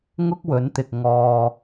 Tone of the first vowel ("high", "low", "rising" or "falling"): high